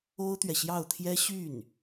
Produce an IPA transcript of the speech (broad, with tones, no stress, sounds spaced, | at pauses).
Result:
o˥ ʊ̯ t̪ ɥ ɛ˨ ɕ j ɑ˥˩ ʊ̯ t̪ʰ j ɛ˥ ɕ y˥˩ n